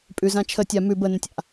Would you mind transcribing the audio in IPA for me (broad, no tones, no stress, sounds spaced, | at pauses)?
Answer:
pʼ ʉ z ã t͡ʃʰ ə tʲ a m ʉ b ə n ə̃ tʲ a̰